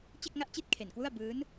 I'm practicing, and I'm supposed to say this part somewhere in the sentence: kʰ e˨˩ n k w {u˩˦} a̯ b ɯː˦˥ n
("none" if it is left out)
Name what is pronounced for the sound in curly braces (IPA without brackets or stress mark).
u˥˩